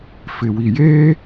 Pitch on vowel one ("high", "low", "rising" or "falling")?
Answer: low